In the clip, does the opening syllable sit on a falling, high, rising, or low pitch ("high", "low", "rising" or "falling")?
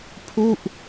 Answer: falling